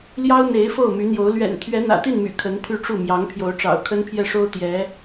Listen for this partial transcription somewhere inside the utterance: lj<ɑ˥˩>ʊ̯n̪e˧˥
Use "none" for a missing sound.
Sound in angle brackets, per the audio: ɑ˥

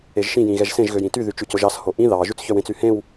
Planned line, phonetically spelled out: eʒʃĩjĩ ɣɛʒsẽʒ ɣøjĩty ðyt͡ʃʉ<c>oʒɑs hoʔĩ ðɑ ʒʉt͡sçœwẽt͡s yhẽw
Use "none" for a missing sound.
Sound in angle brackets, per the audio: c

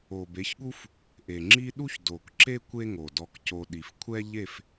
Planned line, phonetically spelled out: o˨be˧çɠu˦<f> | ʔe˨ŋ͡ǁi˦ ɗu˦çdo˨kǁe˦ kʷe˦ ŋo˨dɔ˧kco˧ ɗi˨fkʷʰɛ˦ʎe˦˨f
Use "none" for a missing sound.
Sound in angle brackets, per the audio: f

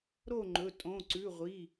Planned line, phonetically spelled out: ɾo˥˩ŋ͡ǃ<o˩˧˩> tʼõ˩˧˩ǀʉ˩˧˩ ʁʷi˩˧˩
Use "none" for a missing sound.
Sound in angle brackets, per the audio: ɵ˩˧˩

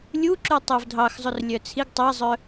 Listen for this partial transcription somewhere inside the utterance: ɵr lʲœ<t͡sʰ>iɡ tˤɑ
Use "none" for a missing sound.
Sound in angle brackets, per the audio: t͡sʰ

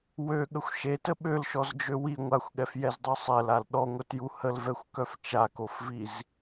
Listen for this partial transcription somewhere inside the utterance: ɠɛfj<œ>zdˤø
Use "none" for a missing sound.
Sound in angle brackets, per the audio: ɛ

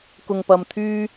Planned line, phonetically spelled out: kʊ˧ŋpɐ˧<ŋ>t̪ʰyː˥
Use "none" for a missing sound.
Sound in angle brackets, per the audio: m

